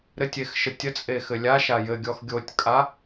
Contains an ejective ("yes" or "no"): yes